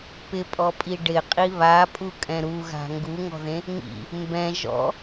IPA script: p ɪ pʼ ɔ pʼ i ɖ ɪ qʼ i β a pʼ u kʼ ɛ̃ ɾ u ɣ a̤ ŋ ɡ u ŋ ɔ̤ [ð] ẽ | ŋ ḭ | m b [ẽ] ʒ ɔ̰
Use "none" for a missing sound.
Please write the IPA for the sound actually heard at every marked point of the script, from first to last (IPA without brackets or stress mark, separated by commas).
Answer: ð, ɛ̃